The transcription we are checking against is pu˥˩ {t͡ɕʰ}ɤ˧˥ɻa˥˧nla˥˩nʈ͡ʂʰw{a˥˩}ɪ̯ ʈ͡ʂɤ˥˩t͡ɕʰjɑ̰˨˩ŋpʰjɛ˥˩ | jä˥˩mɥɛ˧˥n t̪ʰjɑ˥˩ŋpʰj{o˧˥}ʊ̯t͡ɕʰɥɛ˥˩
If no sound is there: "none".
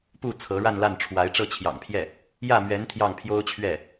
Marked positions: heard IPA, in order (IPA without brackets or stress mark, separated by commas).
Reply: t͡sʰ, a˧˥, o˥